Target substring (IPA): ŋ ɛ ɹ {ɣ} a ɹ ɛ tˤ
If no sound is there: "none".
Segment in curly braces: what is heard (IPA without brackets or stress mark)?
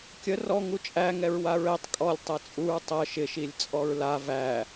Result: w